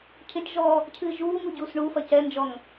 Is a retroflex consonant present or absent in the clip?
present